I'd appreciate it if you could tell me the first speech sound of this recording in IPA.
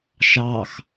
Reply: ʃ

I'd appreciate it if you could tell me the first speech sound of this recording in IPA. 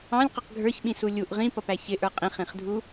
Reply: ɑ̃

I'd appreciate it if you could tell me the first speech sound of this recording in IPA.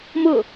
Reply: m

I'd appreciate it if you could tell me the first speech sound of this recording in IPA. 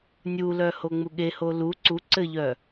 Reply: nʲ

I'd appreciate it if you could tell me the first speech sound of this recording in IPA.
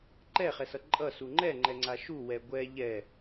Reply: ǃ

